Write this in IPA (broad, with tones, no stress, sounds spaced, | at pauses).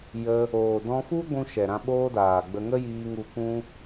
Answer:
j ə˧ | oː˨ d ɔ̃˧ f u˦ ɡʷ ũ˦ ʃ ɛ˨ ɾ ã˧ ɓ oː˦ d aː˨ ɡ͡b ə˧ ŋ ə˦ j iː˧ ŋ u˧ kʷ ũ˦